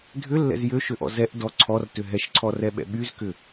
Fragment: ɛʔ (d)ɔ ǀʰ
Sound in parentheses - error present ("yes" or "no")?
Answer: no